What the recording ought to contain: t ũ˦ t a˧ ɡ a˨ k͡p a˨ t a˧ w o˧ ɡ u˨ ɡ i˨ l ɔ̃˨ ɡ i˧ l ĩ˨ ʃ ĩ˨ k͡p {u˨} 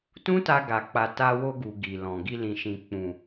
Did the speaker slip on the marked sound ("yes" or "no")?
yes